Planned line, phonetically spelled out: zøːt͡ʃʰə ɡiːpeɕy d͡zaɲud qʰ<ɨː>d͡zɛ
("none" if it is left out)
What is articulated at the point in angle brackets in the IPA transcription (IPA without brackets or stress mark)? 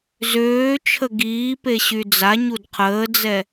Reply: əː